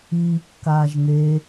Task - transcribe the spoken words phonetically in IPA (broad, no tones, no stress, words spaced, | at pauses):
iːkːaːʒ n̪e